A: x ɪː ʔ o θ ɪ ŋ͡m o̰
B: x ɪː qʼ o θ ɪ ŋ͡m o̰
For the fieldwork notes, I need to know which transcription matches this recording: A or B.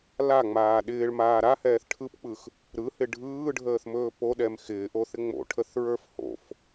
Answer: A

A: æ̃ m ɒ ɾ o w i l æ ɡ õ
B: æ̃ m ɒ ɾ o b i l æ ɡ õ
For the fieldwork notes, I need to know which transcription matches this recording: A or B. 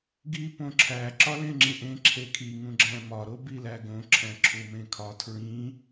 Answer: B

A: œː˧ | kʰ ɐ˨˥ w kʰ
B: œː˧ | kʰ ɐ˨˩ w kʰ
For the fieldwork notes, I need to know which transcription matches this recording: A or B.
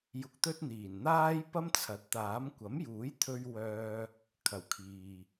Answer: B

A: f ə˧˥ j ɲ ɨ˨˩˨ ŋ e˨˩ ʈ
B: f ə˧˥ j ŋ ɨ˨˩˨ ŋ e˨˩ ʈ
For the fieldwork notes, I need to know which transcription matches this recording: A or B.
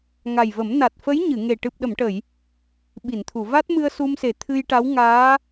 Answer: A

